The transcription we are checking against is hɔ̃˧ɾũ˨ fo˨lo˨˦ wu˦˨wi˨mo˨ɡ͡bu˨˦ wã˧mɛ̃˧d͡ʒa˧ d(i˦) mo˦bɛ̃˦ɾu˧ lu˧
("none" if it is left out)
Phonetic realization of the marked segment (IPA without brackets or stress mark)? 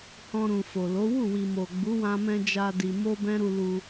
i˧